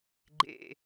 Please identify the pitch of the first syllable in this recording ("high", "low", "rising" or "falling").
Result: low